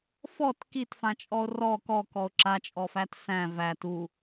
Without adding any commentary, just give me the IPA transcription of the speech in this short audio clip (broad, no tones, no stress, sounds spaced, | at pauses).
f ɔ t k i t f ã t͡ʃʼ ɔ o̯ r ɔ k ɔ k ɔ o̯ ǁ a t͡ʃʼ ɔ f æ t s æ̃ v æ t u